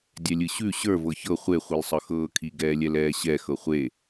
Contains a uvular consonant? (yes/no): yes